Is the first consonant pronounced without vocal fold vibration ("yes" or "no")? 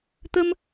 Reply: yes